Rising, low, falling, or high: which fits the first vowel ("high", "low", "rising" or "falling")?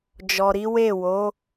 low